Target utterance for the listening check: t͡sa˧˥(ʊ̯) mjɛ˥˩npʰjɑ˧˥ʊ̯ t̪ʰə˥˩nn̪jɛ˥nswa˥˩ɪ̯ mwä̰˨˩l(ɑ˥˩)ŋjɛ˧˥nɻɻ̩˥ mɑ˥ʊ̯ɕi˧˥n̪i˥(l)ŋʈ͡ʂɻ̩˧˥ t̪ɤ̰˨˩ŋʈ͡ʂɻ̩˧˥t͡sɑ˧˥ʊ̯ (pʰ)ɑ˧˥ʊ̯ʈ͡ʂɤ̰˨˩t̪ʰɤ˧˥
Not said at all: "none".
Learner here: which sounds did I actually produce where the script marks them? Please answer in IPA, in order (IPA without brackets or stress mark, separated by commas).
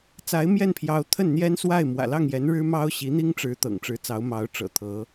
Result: ɪ̯, ɑ˥˩, none, m